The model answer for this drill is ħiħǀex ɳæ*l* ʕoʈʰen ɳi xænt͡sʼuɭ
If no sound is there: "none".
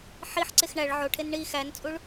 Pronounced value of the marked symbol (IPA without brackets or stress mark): ɭ